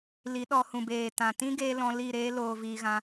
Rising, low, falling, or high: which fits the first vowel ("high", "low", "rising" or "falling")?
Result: rising